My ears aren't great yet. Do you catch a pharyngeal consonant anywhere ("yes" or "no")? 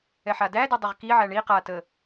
yes